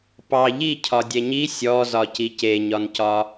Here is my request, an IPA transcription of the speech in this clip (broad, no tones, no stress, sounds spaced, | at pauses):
p ɑ ʎ i cʰ ɒ dʲ ɛ ɲ i sʲ ɔ z ɒ c i c e ɲ ɒ n c ɒ